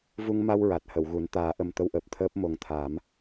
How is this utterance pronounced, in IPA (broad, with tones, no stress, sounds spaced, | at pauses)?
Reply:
v u˧ ŋ m a˧ w ɹ a˨˩ t̚ h ə˨˩˨ w ɣ u˨˩˦ n t̪ aː˨˩˦ ʔ ə˨˩ m t̪ ə˧ w ʔ əː˨˩ p̚ t̪ʰ əː˦˥ p̚ m o˨˩ ŋ t̪ʰ aː˨˩˦ m